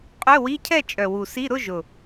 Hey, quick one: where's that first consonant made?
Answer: uvula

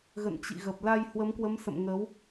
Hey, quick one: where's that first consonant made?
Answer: velum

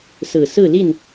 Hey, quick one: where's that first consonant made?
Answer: tongue tip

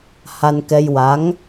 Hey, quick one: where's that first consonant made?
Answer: throat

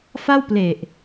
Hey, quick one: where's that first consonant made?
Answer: lips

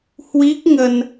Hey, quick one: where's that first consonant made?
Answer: throat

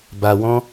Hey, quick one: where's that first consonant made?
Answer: lips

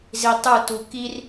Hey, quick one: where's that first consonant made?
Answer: tongue tip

